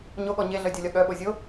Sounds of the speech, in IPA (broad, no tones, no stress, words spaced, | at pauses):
ɲoɠɔ ɲeɮœdʲɔlʲɒ ɠœɓo zʲo